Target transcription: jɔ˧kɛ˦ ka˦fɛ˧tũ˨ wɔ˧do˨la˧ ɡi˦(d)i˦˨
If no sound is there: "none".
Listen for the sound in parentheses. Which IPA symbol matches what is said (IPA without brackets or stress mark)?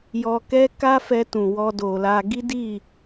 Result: d